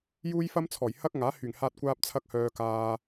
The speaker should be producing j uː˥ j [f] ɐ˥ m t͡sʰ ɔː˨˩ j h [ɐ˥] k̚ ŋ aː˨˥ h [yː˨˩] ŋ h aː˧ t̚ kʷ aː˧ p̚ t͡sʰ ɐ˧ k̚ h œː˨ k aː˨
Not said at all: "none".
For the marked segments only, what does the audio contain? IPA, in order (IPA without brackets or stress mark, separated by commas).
f, ɐ˥, yː˨˩